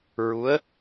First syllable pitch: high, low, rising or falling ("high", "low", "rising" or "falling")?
rising